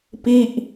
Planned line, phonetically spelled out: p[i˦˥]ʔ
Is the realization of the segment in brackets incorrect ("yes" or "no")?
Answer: yes